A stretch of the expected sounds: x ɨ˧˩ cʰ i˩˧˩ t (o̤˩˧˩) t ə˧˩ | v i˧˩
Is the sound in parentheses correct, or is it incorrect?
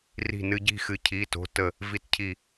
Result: correct